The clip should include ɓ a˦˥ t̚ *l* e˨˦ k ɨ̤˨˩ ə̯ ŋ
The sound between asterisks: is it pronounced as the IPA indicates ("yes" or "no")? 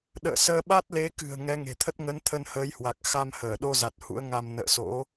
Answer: yes